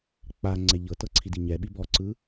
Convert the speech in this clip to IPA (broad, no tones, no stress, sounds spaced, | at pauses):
k͡p a ŋ͡ǀ ɛ ʎ ɤ t ɤ ǀʰ i d i ɲ ɛ ɓ i b ɔ ǀ ɯ